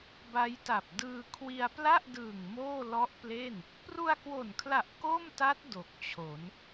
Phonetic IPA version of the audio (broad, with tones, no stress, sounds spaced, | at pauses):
b a˦˥ j t a˨˩ p̚ d ɯː˧ kʰ w i˧ a̯ p l a˥˩ ʔ d ɯː˨˩ ŋ m oː˥˩ l ɔ˦˥ ʔ p l e˥˩ n | p r u˧ a̯ k w o˨˩ n kʰ l a˨˩ ʔ k o˥˩ m t a˦˥ t̚ d o˨˩ k̚ t͡ɕʰ o˩˦ n